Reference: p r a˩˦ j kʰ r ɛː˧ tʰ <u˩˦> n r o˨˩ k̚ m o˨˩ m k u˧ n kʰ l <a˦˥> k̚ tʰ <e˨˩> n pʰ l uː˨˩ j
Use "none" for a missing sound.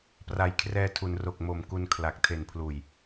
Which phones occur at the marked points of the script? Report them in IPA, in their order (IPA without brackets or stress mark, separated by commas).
u˩˦, a˨˩, e˨˩